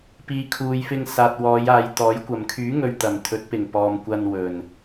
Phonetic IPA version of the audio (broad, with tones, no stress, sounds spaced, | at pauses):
p iː˨ kʰ uː˨ j f ɪ˧ ŋ s aː˨ t̚ w ɔː˨˧ j aː˨ j t̪ ɔː˨˥ j kʷ ɐ˨˩ m kʰ yː˨˥ ŋ ɵ˨ ɥ t̪ ɐ˨˩ m t̪ʰ ɵ˨˥ t̚ p ɪ˨˩ ŋ p ɔː˨ m kʷ ɐ˧ n w ɵ˨˩ n